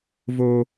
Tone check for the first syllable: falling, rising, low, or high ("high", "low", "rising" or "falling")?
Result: high